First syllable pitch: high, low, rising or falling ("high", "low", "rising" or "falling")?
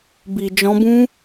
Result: low